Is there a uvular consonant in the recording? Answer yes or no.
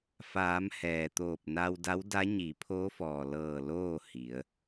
no